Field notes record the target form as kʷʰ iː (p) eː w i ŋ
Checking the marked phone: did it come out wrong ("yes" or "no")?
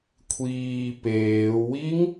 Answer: no